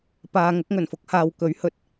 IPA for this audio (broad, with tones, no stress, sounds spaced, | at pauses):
p aː˨ ŋ ʊ˨˥ k̚ ŋ ɵ˨˩ n f ʊ˨˥ k̚ h aː˨ w k ɵ˨˥ ɥ h ɵ˨ t̚